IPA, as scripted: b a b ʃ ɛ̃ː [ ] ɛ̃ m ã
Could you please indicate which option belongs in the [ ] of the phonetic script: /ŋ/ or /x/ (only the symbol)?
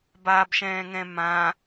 ŋ